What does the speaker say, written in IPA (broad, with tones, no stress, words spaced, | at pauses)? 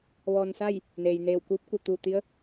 ʋɔː˧n sa˥˨j | neː˩jneː˧˩wkuː˧˥p̚ku˧˩ t̪uː˧˩t̪i˧˥ə̯